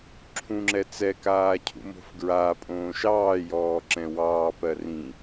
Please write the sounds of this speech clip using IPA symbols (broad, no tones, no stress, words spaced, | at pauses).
ǁʰũŋ͡ǁɛ t͡sɛkaː cʰṵmo̤fɡɹaː pʼõːʃɑːjɔːǁɛ̃ wɑːpɜ rĩ